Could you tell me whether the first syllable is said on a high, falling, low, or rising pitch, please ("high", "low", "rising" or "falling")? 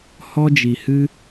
high